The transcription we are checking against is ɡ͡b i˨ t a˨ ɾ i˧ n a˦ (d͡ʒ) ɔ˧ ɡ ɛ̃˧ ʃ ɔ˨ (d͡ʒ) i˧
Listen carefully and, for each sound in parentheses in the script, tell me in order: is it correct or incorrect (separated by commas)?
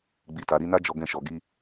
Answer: correct, incorrect